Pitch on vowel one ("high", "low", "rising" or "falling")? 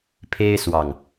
high